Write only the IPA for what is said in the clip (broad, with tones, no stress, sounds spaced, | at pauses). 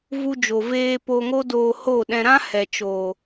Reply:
v u˧ d͡ʒ o˨ v eː˧ p o˨ ŋ o˦ d oː˧ h o˦˨ ɗ ɛ̃˧ ɾ ã˦ h ɛ˨ t͡ʃ o˨